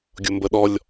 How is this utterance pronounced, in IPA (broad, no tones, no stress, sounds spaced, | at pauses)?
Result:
ɡʲ o m b ə ɗ ɔ lʲ